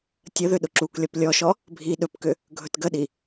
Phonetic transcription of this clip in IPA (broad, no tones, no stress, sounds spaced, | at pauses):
tʲ ə ð ʏ ɗ ʊ ǁ u k lʲ ɔ p lʲ ɔ ʃ ɔ | bʱ i ɗ ɵ p k ʏ | ɡʱ ɵ t ɡ ə ɗ i